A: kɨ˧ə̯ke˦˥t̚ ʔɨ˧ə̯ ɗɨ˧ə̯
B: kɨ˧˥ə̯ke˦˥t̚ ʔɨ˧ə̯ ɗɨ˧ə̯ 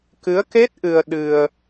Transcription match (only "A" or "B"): B